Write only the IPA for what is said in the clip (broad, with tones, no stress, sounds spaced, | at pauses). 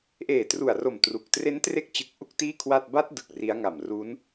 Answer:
ʔ eː˨˩ t r u˨˩ a̯ r o˨˩ m t r u˨˩ k̚ t r e˦˥ n t r e˦˥ k̚ t͡ɕ ɯ˨˩ k̚ ʔ u˥˩ k̚ t iː˥˩ kʰ w a˥˩ t̚ b a˦˥ t̚ d ɯ˨˩ k̚ r i˦˥ a̯ ŋ a˨˩ m r u˦˥ n